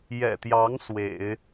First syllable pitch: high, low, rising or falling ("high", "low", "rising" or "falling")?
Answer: low